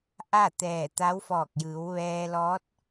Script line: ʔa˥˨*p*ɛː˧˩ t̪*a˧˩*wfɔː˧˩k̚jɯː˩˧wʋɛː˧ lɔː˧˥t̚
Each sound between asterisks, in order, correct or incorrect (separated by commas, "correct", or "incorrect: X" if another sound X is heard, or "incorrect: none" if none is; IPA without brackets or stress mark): incorrect: t̪, incorrect: a˧˥